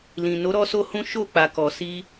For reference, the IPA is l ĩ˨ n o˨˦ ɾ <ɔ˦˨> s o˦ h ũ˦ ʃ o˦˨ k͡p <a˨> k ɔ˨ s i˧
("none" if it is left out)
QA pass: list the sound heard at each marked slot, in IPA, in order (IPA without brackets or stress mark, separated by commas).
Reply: ɔ˦, a˨